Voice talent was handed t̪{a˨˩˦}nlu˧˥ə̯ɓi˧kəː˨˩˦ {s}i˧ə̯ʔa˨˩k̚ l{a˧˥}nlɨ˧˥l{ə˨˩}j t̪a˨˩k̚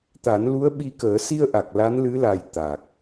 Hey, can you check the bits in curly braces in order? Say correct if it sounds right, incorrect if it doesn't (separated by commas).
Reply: correct, correct, correct, incorrect